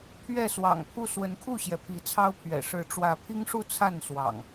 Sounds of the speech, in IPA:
pʰ ɥ ɛ˥˨ s w ɑ̰˨˩ ŋ pʰ u˥˨ s w ə˨˦ n kʰ u˥˨ ɕ j ɛ˩ pʰ i˨˦ t͡sʰ ɑ˦ ʊ̯ pʰ ɥ ɛ̰˨˩ ʂ ɻ̩˨˦ ʈ͡ʂ w ä˨˦ pʰ i˦ ŋ ʂ u˥˨ t͡sʰ a˥˨ n s w ɑ̰˨˩ ŋ

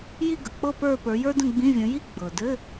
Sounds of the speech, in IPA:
j i˥˧ ɡ ə˩ k͡p ɤ˥˧ p ə˞˥˧ p ə˞˨˦ j ə˞˥ d ə̃˥˧ ɡ͡b ĩ˧˥˧ vʲ ə̃˨˦ j i˥˧ ɡ͡b ɤ˩ d ɘ˧˥˧

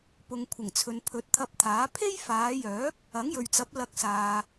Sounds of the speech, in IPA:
p ʊ˨ ŋ kʷʰ ɪ˨˩ ŋ t͡sʰ ɵ˨ n pʰ ɵ˨˥ t̚ t̪ʰ ɐ˧ p̚ t̪ʰ aː˨˥ pʰ e˥ j f aː˨˧ j œː˨˥ k̚ | ɐ˨˥ ŋ j ɵ˨ ɥ t͡s ɐ˨˥ p̚ l ɐ˧ k̚ s aː˨

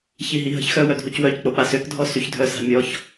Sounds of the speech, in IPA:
ç i ɦ i ɦ ə̤ ç x œ w œ dʱ u c w œ c k͡p o k͡p a s ø k dʱ ɔ s y ç dʱ œ s a̤ mʲ ɔ ç

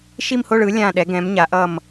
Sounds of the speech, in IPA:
ʃ i˥˨ m h o˥˨ ɭ ɯ˩˥ lʲ ã˥˨ ɗ ɛ˩˥ ɡ ɛ̃˩˥ m ɲ a˩˥ ʔ ʌ˥˨ m

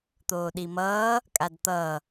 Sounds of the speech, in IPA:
t̪ oː ɗ i m ʌː | kʼ a d t̪ ʌ

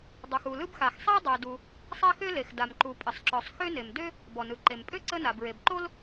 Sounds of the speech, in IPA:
dˤ u˩ x u˩ l ɯ˥ b x a˩ x sˤ a˥ dˤ ø˩ d u˩ | sˤ a˥ x ø˥ l e˩ x d a˩ m ǃ u˩ pʼ ə˩ sˤ ǁ ɔ˩ sˤ x ø˥ n e˩ m d ø˥ | b ɔ˩ n ɯ˩ ǃ e˩ m pʼ ø˥ ǀ ə˥ n a˩ b ɹ e˩ b ǃ o˥ l

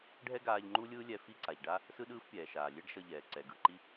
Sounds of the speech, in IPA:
ɖʱ ɛ˥ ɡ aː˧ ʎ ŋ͡ǃ u˥ lʲ ɯː˥ lʲ ɛ˧ f i˥ ǀ a˩ ʎ ɖ a˥ | s ɯ˥ ɗ ɯː˥ f pʲ ɛː˩ ʃ aː˩ lʲ e˥ ɖ ʃ ʌ˧ ʎ ɛː˩ ǀ ɛ˩ ɡ ɯ˩ ǃ i˧

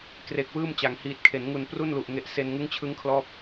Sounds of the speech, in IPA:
k r e˨˩ k̚ w ɯː˥˩ m t͡ɕ a˩˦ ŋ h iː˨˩ t̚ kʰ e˩˦ n ŋ u˨˩ n p r u˥˩ n l u˨˩ ʔ ŋ e˨˩ ʔ s e˧ n ŋ ɯ˦˥ ŋ t͡ɕʰ ɯ˦˥ ŋ kʰ l ɔː˦˥ p̚

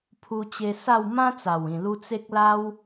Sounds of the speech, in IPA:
pʰ u˧ t͡ɕ e˧ s a˥˧ w m ã˦ t͡s a˨˩ w ĩ˨˩ l u˧ t͡s e˦ k̚ l a˦ w

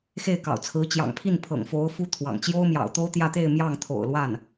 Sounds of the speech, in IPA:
x e˥˩ ɪ̯ k ɑ̰˨˩ ʊ̯ t͡sʰ ɹ̩˧˥ t͡ɕ j ɑ̰˨˩ ŋ pʰ i˥˩ n pʰ ɤ̰˨˩ ŋ f o˧˥ ʊ̯ f u˥ t̪ʰ w ɑ̰˨˩ ŋ t͡ɕ j o˥ ʊ̯ m j ɑ̰˨˩ ʊ̯ t̪ o˥ ʊ̯ t̪ j ä˥˧ t̪ e˥˧ ɪ̯ m j ɑ˥˩ ŋ t̪ʰ o̰˨˩ ʊ̯ l w a˥˩ n

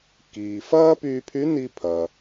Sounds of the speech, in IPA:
k iː˩ f ɐː˥ p yː˧ pʰ y˧˥ n i˧ pʰ ɐ˩

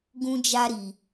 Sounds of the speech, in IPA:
ɡ ũ˦ d͡ʒ a˦ ɾ i˧

